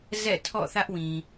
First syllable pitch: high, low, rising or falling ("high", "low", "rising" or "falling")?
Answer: falling